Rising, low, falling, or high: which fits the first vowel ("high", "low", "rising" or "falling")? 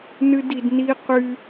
high